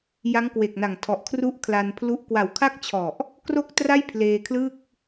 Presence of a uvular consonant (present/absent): absent